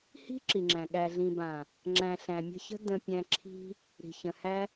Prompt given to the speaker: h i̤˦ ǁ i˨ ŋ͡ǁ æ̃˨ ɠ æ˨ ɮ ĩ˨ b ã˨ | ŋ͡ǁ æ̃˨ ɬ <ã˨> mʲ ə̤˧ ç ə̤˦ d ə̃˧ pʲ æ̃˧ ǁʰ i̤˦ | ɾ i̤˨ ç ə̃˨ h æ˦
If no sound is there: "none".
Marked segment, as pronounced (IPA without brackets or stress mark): æ̃˨